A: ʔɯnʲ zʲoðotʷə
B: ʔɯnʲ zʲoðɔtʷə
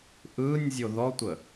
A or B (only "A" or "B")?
B